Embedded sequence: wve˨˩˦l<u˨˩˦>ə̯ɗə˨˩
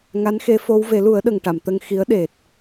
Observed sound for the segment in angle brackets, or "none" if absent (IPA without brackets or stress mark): u˨˩˦